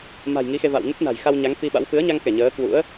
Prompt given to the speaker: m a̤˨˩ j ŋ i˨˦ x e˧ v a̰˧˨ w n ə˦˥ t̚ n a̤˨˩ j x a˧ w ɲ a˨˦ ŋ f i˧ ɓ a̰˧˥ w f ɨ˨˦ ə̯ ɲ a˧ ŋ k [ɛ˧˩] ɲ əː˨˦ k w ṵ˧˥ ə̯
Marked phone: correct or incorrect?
correct